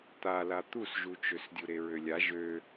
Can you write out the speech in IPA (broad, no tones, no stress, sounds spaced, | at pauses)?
t̪ a l a t̪ u s ʒ u t͡ʃ ø s dʲ u ɾ e ɹ ø lʲ a ʒ ø